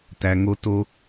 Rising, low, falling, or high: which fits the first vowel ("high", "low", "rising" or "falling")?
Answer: low